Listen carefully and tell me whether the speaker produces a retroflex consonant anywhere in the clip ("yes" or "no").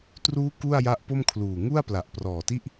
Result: no